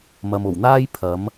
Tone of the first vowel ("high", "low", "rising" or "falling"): low